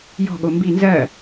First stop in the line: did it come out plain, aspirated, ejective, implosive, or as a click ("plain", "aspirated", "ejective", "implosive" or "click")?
implosive